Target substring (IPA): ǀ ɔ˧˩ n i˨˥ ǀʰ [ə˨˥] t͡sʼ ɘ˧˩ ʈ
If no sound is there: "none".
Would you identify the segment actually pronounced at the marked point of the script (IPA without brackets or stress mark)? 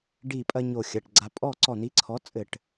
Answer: ɔ˨˥